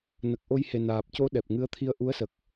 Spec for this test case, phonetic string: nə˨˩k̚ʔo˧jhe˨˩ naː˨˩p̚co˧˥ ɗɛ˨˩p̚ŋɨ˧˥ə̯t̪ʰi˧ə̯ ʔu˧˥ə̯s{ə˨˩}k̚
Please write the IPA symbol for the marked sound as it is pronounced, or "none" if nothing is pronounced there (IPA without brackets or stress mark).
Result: ə˨˩